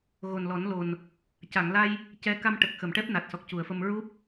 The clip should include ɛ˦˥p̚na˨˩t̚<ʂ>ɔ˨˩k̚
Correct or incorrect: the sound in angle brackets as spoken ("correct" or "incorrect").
incorrect